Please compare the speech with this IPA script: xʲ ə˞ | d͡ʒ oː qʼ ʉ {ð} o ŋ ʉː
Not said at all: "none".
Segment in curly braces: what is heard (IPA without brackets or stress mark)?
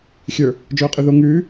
ð